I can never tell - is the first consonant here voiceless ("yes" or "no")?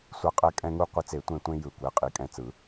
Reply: yes